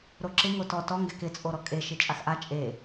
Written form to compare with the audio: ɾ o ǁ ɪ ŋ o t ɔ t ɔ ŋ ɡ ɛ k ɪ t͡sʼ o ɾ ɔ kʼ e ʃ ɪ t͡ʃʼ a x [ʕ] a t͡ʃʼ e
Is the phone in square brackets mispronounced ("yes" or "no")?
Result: yes